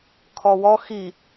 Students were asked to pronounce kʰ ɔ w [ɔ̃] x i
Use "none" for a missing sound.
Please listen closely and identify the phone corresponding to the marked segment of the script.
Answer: ɔ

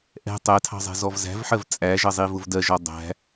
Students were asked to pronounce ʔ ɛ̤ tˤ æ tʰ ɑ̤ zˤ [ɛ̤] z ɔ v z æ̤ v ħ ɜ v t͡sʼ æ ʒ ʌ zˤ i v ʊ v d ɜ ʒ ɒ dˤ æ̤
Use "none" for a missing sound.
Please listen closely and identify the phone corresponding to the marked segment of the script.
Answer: ɛ̤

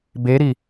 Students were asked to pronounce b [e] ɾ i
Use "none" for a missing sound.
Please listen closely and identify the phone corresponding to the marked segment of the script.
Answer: e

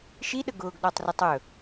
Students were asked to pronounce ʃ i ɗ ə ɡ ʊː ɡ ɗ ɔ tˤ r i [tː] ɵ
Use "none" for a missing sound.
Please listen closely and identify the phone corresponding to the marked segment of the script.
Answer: tˤ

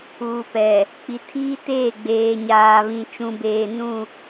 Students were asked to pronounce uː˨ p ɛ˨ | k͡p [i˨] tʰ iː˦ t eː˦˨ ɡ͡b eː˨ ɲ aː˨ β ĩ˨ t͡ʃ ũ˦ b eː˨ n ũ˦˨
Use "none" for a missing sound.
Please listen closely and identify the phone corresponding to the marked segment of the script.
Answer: i˨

